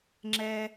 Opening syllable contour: low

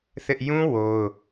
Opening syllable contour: high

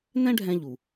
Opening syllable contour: high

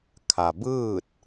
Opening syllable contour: low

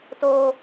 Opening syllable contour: low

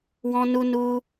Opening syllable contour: high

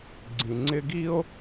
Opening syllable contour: low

